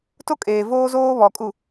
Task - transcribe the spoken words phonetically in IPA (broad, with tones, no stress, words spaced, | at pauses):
to˦kʼeː˨voː˦zoː˦ βɔ˨kʼu˨